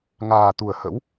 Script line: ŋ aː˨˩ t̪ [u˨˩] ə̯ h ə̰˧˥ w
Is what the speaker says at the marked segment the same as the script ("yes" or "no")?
yes